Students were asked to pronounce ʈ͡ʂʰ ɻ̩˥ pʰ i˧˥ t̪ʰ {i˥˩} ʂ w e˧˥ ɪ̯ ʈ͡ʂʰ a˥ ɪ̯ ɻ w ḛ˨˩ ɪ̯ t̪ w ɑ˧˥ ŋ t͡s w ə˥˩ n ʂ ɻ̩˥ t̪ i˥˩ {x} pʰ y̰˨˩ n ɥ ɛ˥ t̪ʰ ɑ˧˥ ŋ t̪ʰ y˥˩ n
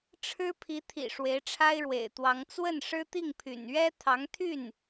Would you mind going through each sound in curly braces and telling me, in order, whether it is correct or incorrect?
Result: incorrect: ḭ˨˩, incorrect: ŋ

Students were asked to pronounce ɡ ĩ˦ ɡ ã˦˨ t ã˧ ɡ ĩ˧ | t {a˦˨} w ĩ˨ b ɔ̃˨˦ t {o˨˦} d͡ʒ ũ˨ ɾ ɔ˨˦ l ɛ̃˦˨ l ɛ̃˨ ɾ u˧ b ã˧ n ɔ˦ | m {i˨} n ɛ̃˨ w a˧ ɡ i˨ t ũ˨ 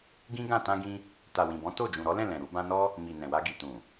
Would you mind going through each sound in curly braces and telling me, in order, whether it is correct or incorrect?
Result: incorrect: a˨, incorrect: o˦˨, correct

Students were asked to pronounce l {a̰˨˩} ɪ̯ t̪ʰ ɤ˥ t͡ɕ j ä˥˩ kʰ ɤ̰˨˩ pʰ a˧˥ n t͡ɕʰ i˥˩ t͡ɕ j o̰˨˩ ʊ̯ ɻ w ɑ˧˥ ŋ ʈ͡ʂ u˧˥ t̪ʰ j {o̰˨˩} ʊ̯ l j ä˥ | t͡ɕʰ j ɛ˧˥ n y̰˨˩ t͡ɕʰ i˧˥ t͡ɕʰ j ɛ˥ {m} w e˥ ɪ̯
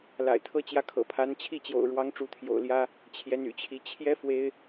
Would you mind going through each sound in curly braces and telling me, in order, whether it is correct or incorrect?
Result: correct, correct, incorrect: f

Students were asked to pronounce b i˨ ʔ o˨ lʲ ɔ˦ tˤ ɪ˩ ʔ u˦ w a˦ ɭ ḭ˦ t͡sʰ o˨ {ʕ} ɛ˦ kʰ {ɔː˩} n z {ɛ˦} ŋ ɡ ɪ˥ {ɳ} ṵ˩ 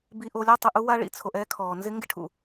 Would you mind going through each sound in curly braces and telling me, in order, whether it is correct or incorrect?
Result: incorrect: ʔ, correct, incorrect: ɪ˦, incorrect: ʈʰ

